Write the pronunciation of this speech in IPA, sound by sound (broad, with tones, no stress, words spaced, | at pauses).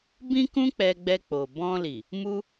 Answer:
bĩ˦kũ˦ k͡pɛ˧ɡ͡bɛ˧k͡po˨ bɔ̃˧li˨ | mu˦